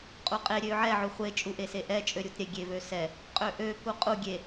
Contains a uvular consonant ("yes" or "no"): yes